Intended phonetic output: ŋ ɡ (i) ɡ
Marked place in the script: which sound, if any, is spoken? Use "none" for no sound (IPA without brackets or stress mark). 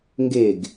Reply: e